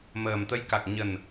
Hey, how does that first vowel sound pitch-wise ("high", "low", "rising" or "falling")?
low